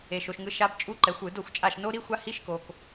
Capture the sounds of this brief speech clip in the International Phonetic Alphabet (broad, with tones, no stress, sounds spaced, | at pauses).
e˨ ʃ o˨ ʃ ŋ ɯ˨˦ ʃ a˦˥ b t͡ʃʼ u˦˥ ǃ ɛ˨˦ xʷ ɯ˨˩˦ d o˥˩ xʷ t͡ʃʼ a˥˩ ʃ n o˦˥ ɾ i˧˥˧ xʷ a˦˥ h i˧˥˧ ʃ k o˨ k